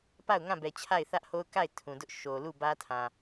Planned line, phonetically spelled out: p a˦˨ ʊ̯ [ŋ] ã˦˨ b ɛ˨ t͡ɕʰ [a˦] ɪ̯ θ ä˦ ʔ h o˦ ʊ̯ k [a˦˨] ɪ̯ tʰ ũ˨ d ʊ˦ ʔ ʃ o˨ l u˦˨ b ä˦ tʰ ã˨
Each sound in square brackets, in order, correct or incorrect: correct, incorrect: a˦˨, correct

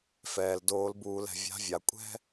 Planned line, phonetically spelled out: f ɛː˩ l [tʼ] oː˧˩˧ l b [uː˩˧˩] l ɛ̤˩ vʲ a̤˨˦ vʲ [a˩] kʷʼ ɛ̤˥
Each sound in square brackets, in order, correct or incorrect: incorrect: d, incorrect: uː˧˩˧, correct

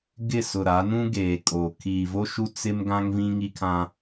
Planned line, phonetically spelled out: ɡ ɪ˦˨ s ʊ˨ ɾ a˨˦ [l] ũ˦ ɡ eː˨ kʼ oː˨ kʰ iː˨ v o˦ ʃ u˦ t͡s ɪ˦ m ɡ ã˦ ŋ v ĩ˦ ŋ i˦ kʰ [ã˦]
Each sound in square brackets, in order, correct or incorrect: incorrect: n, correct

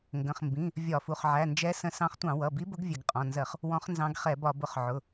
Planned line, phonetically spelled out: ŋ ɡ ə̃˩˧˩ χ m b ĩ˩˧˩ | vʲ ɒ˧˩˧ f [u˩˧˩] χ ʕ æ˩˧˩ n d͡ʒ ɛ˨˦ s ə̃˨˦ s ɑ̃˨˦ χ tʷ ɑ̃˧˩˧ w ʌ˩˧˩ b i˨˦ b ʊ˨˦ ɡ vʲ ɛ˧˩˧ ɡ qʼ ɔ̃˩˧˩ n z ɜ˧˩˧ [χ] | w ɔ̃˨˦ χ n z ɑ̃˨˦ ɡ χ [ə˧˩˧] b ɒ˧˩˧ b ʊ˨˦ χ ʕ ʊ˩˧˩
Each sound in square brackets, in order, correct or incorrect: correct, correct, incorrect: ɛ˧˩˧

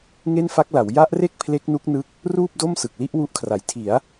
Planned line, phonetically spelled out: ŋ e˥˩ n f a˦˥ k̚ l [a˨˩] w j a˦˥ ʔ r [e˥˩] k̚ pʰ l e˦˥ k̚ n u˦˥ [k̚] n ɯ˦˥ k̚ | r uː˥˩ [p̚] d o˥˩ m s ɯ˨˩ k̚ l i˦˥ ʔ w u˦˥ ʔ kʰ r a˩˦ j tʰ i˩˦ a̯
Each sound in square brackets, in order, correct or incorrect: incorrect: a˩˦, correct, correct, correct

